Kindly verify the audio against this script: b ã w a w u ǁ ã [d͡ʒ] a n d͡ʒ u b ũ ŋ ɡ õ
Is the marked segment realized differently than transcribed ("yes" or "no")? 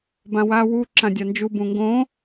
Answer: yes